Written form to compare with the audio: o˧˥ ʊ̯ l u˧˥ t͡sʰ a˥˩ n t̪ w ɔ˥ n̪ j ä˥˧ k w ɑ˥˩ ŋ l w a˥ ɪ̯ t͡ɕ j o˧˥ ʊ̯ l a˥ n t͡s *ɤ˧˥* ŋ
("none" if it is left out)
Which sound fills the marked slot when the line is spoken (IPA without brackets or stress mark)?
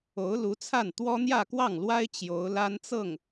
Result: ɤ˥˩